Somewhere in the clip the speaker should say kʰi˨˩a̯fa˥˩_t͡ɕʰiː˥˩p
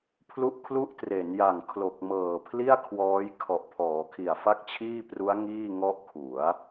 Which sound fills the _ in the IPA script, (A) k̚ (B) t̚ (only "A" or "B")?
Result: A